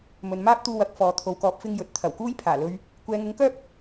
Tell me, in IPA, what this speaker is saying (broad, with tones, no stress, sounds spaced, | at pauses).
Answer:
m ɵ˨ n m aː˥ p̚ t̪ uː˧ w ɐ˨˥ k̚ f ɔː˨ t̪ʰ o˨ w k ɔː˨˥ p̚ f ɪ˧ ŋ j ɵ˨ t̚ t̪ʰ ɐ˨˩ w k uː˥ j pʰ aː˨˩ l ɵ˧ ɥ | kʷ ɛː˨˧ ŋ ʊ˨˥ ŋ k œː˥ p̚